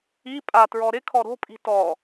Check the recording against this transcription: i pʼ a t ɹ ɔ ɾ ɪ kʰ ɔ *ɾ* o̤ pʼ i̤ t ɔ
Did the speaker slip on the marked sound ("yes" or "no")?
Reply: no